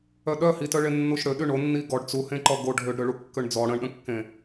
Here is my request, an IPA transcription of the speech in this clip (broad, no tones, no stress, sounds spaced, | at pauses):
œ ɗ œ h i t œ ɭ e nː u ʃ ɽ ø ɗ y ɳ o nː i ɡ ɔ ɖ t͡s u h ẽ ǃ ɔ ɡ o ɖʱ ø ɖ ɾ ø ɭ u kː ø ɳ d͡z ɔ ɽ ə̃ ɳ ɗ ə̃ kː ẽ